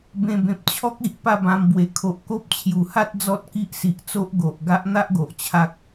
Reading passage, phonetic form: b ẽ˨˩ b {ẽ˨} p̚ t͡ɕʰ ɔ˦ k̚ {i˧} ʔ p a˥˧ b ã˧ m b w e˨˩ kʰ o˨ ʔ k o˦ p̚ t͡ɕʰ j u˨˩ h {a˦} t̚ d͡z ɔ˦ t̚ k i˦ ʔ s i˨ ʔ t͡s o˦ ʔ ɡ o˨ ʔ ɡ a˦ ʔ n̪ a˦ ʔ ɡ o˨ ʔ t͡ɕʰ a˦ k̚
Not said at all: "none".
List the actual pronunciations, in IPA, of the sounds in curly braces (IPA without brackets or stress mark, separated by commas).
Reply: ẽ˨, i˨, a˦